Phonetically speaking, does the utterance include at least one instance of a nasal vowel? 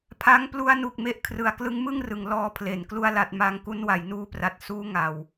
no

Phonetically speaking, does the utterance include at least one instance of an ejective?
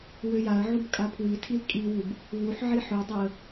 yes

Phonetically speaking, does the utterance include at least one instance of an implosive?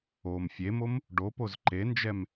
no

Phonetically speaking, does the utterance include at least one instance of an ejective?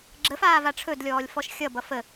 no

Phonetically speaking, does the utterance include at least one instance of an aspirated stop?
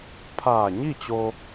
yes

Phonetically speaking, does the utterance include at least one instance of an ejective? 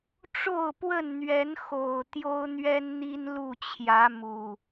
no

